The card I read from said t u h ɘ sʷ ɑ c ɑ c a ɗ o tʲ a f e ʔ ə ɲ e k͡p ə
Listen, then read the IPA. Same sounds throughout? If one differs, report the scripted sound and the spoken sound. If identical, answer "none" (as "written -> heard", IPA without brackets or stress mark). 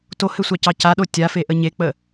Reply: u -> o